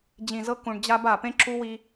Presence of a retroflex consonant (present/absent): present